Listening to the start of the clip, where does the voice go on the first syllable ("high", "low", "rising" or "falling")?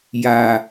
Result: low